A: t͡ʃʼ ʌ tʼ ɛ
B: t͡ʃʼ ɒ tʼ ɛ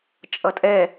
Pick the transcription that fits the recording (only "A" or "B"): A